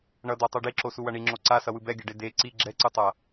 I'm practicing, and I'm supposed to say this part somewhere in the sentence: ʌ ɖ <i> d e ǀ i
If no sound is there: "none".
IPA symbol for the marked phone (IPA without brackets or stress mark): e